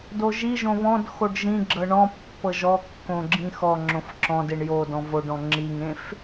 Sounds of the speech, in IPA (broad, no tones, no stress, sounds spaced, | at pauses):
d o ʒ i ʒ õ β ɔ̃ d x o ɖ ʒ ĩ ɡ͡ǁ ɤ ɳ ɔ̃ pː ɤ ʒ ɔ kː õ ɡ͡ǁ ĩ x ɔ ŋ͡ǁ õ f ǁ ɔ̃ d e ɳ j o d ɔ̃ v o ɖ ɔ̃ ŋ͡ǁ i ŋ ẽ f